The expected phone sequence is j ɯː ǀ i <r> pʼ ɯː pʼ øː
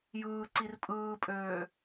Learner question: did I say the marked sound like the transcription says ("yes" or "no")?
yes